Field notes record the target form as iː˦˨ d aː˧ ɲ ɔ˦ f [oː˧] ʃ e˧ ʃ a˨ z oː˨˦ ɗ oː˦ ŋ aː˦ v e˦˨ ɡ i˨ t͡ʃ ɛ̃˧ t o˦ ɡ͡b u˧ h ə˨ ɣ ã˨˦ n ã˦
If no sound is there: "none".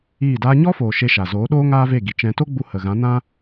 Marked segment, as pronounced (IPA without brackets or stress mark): oː˨